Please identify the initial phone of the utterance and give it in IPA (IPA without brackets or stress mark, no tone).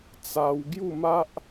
t͡s